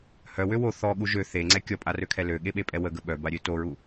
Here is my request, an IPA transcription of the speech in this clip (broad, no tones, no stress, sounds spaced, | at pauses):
h œ w ø w o θ ɔ ɠ u ʒ ø θ e ŋ͡ǀ ɛ kʲ ɔ pʼ a r ø kʰ ɛ l ø ɠ e ɓ e pʼ ɛ w ə ɡ ə ɓ œ b a ɾʲ ø t o ɹ u